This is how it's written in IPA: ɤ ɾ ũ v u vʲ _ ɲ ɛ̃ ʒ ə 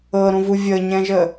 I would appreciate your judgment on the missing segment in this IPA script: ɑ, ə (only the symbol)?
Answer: ə